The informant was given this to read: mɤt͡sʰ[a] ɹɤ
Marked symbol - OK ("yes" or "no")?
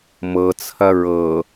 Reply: no